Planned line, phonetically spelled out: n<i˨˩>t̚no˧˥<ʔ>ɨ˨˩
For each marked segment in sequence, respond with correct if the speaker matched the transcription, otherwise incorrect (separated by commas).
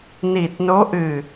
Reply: correct, correct